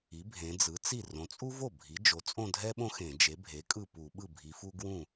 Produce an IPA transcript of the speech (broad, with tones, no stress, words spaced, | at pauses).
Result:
i˩˥bʱẽ˩˧d͡zɯ˩˥t͡si˥˩ rõ˩˧t͡sʼu˥vo˥˩ bʱi˩˥d͡ʒo˩˥t͡sʼõ˥˧ dʱɛ˥ɓõ˥˧ xẽ˧˩˧d͡ʒe˩˥bʱe˩˥kʼɯ˥˩ pu˧˩˧ɓɯ˥˩bʱi˩˧fu˥ ɡwũ˥˩